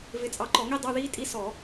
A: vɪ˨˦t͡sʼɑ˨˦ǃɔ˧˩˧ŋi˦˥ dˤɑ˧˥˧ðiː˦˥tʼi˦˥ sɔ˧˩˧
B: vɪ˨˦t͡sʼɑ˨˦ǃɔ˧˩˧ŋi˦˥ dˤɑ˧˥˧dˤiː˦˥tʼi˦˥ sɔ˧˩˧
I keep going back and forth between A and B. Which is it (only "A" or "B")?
A